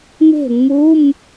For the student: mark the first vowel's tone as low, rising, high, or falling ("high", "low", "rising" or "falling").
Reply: falling